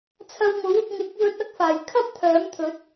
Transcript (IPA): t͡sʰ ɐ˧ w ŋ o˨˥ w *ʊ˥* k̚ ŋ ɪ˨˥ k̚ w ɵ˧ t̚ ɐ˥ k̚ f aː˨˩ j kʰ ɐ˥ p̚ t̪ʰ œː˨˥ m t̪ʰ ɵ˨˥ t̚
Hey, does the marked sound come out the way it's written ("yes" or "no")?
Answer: no